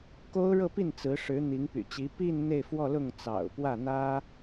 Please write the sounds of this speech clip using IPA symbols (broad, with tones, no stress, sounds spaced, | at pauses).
k o˥ ʊ̯ ɻ ɤ˥˧ p i˥˩ n t͡s ɹ̩˧˥ ʂ ɻ̩˧˥ n̪ i˧˥ ŋ p y̰˨˩ t͡ɕ i˧˥ p i˥˧ n n̪ e˥˧ ɪ̯ f w ɔ˥˧ l ʊ˥˩ ŋ t͡s ɑ̰˨˩ ʊ̯ p w ä˥˩ n̪ ä˥